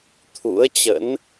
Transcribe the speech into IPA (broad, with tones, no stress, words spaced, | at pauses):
t̪ʰṵ˧˥ə̯t͡ɕə̰˧˥n